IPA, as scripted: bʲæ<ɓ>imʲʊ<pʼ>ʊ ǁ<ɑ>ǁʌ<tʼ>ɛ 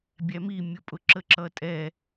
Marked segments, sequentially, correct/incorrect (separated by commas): incorrect, correct, incorrect, correct